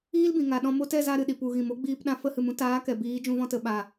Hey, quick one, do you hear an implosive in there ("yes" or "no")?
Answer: yes